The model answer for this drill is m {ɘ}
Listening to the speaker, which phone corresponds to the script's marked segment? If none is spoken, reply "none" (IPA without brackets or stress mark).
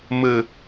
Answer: ɘ